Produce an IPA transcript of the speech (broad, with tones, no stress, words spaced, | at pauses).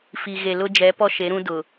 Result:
fi˨ ɣe˨lʊ˦ d͡ʒɛ˨˦pɔ˦ʃe˨˦ɾũ˦ dʊ˨